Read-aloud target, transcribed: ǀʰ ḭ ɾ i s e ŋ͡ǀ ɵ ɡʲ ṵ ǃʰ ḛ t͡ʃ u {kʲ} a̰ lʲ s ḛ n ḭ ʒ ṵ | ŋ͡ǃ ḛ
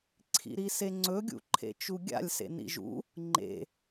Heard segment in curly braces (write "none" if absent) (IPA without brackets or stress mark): ɡʲ